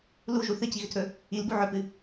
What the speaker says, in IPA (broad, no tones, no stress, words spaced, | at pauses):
luʒu θɨciɣʏtʰɵ | ilbu ʕɵpɨ